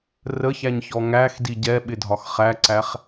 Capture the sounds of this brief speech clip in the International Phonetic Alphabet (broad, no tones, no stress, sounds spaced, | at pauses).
r ə ç æ ɲ ç ɔ ŋ æ x d i ɟ ɛ ɓ ɪ dʱ ɒ x χ æ ǀ æ χ